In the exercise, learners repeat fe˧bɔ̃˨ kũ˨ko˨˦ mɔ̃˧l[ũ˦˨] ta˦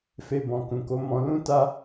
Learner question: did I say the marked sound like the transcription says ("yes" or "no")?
no